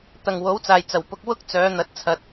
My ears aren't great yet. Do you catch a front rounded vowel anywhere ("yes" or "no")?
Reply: yes